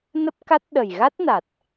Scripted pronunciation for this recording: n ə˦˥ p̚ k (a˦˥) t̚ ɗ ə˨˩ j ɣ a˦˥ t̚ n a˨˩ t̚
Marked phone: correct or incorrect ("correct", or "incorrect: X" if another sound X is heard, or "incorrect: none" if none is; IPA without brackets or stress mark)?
correct